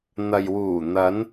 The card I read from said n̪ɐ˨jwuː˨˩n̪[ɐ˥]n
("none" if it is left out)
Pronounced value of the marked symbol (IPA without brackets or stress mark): ɐ˨˧